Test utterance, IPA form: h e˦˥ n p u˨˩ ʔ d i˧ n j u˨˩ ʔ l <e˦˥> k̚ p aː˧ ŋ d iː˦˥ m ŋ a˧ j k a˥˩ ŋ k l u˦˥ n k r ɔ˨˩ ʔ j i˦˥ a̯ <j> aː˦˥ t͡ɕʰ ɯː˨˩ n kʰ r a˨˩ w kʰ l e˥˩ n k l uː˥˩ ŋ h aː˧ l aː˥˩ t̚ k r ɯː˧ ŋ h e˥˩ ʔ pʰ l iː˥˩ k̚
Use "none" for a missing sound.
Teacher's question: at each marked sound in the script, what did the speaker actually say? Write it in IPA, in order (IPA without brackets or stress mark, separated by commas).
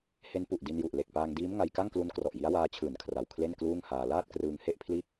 e˨˩, w